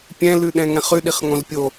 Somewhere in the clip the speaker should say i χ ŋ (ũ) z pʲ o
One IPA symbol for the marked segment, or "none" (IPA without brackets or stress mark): õ